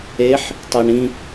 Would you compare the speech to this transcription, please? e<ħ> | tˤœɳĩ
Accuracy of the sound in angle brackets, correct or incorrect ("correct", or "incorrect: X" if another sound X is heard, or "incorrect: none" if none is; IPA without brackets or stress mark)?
correct